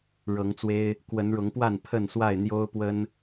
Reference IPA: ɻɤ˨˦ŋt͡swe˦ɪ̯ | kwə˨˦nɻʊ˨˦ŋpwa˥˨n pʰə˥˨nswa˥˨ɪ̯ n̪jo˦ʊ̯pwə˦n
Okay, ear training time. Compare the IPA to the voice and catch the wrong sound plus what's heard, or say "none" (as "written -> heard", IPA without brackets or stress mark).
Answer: none